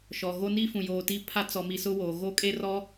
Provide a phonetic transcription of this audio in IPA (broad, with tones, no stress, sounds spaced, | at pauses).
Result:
ʃ ɔ˨ ɣ o˦ n i˦ f ũ˨ j oː˨ t i˦ pʰ a˦ t͡s ɔ˨ m i˨ s ʊ˦ w oː˨ ɣ o˦ kʼ e˦ r ɔ˦